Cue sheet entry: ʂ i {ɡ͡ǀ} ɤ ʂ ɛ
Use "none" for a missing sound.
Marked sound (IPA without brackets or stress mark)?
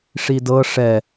d